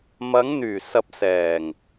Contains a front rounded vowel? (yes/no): yes